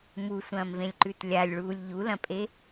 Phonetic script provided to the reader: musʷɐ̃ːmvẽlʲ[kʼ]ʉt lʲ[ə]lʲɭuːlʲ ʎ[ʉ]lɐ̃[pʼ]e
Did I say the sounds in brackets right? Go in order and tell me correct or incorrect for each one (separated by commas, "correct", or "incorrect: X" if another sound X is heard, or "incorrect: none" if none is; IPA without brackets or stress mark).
incorrect: ǃ, incorrect: a, incorrect: u, correct